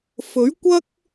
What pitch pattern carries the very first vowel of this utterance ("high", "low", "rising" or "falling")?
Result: rising